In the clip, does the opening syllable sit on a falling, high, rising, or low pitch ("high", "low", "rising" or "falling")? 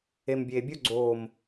low